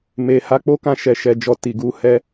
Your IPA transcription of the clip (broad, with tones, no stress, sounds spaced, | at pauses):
m e˨ h a˧ k͡p o˦ k ã˧ ʃ ɛ˨ ʃ ɛ˨ d͡ʒ ɔ˨ t i˨ ɡ u˧ h ɛ˧